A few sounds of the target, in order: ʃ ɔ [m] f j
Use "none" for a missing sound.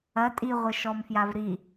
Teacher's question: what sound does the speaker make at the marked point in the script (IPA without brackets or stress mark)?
m